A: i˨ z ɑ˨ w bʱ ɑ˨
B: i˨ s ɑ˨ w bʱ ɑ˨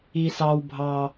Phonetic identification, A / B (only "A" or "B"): B